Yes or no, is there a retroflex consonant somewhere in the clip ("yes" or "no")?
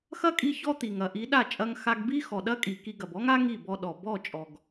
no